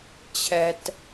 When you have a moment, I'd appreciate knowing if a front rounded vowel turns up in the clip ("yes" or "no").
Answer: no